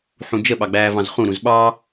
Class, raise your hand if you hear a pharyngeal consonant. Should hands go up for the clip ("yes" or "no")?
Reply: yes